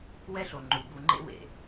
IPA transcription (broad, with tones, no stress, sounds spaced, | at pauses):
w ɛ˦ ɬ o˨ ŋ͡ǃ u˨ b u˨ ŋ͡ǃ ḛ˦ w ḛ˨